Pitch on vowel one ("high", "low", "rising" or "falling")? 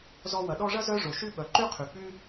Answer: high